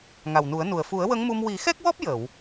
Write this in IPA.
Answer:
ŋ a˨˩ w n u˨˩˦ ə̯ n u˨˩ ə̯ f u˨˩˦ ə̯ w ə˧˥ ŋ m u˧ m w i˨˩˦ x ɛ˦˥ k̚ w ɔ˦˥ p̚ j ə˨˩˨ w

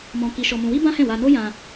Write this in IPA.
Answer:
m ɔ̃˧ k i˧ ʃ ɔ˧ m ũ˧ w i˦ b ã˦ h ɛ̃˦˨ w a˧ n o˦ j ã˧

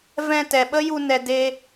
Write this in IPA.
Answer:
v ɛ̃˧ t ɛ˨ ɓ ə˦ j u˧ n ɛ˨ d e˧

